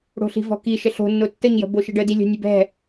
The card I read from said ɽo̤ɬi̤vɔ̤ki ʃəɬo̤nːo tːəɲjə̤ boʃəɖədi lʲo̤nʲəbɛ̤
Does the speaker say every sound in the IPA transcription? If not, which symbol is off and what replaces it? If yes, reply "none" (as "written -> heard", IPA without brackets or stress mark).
none